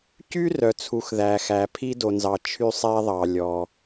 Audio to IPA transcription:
cy˥rœ˩t͡sʰu˩x ðæ˩xæ˩ pʰi˥do˩nzɑ˩ t͡ʃʰy˥sˤɛ˥ðˤɑ˩ lʲɔ˩

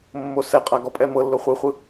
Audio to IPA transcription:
mːosɛqʼa ɡɔpʼɛmɤlːo χʷɯχʷɯ

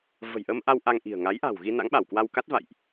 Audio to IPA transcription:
və̤˨˩jʔə˧mʔa˧w ʔa˧ŋʔi̤˨˩ə̯ ŋa˨˦jʔa̤˨˩wɣi˧ na̰˧˥ŋɓa˧˩wkwa˧w ka˦˥t̚va̰˧˨jʔ

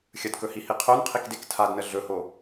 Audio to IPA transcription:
xʲədkɵhihi qʰonqʰikdek tʰadnə ɮɵho

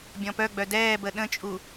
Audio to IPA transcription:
bʲɔ̃pœɡ͡bœ dɛːbə ɗə̃t͡ʃʼu

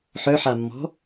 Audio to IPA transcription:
ħœħamːɔ̤

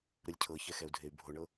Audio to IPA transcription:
ɾɯlʲcʰɤçɛ xɛu̯dʱey̯bʱoɳɤ

